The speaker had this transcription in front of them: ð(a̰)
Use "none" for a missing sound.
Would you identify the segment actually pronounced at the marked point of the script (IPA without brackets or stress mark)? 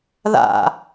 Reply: a̰